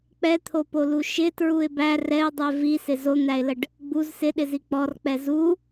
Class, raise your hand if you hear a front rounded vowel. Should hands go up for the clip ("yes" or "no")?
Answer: no